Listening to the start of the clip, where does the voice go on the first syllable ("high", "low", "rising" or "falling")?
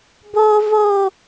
high